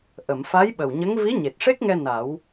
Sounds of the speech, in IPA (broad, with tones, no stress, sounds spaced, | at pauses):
ʔ ə˨˩˨ m f a˧˥ j ɓ ə˨˩ w ɲ ə˧˥ ŋ v i˧˥ ɲ e˨˩ t̚ ʂ e˦˥ k̚ ŋ ɛ˧ n a˨˩˦ w